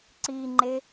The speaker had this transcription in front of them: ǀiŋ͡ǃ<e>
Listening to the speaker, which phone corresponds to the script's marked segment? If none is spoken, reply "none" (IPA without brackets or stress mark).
e